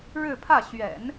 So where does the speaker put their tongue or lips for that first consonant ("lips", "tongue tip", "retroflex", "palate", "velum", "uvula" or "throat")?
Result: retroflex